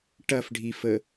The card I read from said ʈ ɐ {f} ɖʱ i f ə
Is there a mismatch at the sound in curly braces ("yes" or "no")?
no